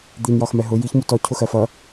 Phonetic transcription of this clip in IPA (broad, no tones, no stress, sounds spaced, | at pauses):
d̪ i n j ɒ x m ɛ ɦ ʊ j i ç m u t ɔ cʰ ʊ x ɜ f ʌ